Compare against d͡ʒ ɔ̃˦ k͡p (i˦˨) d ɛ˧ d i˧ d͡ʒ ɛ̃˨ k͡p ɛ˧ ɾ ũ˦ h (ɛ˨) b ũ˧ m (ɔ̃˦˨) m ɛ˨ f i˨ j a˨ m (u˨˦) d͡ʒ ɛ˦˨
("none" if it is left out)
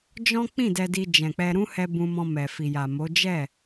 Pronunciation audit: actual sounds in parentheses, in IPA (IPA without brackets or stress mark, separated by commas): ĩ˦˨, ɛ˧, ɔ̃˧, o˨˦